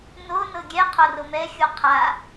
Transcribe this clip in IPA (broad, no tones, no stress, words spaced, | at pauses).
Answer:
nonɤ ɡʲɛ qʰoromɛxʲu qʰa